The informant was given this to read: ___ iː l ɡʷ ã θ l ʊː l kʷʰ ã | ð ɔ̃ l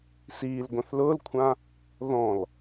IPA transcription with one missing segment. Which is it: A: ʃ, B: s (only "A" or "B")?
B